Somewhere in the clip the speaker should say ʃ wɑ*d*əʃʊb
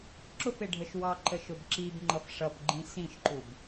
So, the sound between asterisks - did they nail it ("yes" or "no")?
no